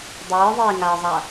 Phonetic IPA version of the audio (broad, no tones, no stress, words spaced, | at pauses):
dˤɨːðˤiːŋaə̯zˤa